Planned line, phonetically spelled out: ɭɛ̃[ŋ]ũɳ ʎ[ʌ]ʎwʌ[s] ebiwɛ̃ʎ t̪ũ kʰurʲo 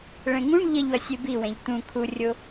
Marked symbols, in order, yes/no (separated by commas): yes, yes, no